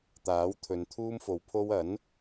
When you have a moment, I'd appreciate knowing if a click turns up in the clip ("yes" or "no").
no